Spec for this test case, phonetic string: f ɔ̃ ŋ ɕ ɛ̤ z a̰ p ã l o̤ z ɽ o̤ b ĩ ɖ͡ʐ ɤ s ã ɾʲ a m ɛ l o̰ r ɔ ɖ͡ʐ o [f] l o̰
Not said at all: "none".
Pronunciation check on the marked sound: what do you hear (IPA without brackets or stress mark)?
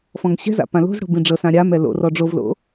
v